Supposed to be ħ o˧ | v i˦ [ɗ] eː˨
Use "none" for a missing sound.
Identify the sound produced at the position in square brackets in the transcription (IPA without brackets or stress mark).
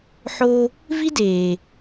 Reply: d